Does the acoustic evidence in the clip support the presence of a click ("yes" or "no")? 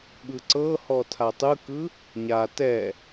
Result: yes